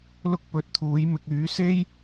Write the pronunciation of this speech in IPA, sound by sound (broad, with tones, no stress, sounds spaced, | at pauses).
l ʊ˥ k̚ p ɵ˨˥ t̚ t̪ʰ uː˨˥ j m ɪ˧ k̚ yː˨˥ s e˥ j